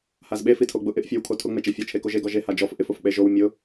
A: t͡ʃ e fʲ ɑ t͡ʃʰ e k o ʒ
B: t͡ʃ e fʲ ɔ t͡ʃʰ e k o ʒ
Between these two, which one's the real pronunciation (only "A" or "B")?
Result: B